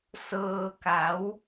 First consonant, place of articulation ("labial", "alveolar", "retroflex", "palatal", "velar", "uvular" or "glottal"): alveolar